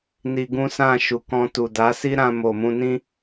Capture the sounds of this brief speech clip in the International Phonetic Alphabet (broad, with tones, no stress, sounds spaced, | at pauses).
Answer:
n i˧ ɡ ũ˦ s ã˦˨ ʃ u˨ k ɔ̃˧ t u˨ d a˨˦ s i˦ ɾ ã˧ m o˨ m ũ˧ n ĩ˦